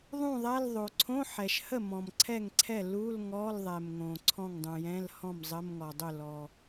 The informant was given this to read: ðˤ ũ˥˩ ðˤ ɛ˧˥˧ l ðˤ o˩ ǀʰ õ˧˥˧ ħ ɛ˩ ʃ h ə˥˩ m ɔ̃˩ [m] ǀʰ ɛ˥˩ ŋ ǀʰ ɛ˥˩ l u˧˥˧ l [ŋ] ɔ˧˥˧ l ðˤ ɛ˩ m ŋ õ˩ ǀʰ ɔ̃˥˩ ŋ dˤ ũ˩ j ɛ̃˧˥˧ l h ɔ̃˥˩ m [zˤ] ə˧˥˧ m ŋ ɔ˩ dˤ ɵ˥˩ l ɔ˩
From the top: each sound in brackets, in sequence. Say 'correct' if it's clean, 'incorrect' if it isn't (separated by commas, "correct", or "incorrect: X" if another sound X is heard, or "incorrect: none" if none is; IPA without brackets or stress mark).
correct, correct, correct